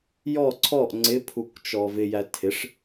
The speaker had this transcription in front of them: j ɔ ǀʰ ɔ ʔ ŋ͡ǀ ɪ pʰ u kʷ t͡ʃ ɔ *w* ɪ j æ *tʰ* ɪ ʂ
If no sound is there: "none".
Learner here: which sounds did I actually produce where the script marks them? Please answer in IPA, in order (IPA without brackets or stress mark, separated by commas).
v, tʰ